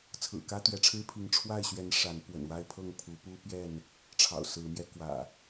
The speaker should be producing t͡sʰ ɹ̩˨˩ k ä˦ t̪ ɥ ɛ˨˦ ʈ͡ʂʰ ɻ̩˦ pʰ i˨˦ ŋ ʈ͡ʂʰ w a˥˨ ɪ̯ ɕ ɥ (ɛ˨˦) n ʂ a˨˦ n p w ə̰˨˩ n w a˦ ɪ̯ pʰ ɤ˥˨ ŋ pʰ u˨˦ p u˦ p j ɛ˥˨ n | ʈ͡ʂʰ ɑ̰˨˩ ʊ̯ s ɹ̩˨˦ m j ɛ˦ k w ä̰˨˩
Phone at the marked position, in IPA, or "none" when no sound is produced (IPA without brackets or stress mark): ɛ˨˦